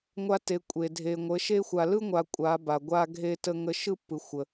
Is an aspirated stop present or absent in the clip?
absent